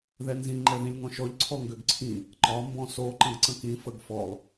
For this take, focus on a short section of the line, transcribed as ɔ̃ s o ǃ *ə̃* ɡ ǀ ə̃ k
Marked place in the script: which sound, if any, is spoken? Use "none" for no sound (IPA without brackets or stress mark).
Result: ə̃